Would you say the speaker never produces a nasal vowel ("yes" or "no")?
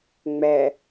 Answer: yes